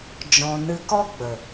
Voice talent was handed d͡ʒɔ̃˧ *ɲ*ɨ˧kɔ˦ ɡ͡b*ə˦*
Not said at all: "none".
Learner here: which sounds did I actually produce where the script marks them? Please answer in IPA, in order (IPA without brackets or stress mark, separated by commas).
n, ə˨